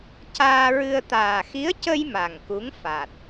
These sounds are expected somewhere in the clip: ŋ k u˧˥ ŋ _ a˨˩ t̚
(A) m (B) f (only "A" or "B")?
B